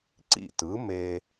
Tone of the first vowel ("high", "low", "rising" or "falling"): falling